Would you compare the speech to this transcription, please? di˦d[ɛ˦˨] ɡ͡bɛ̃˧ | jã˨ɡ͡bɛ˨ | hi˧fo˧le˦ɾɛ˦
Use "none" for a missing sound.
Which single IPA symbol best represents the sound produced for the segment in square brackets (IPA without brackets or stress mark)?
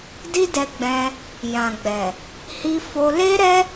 ɛ˧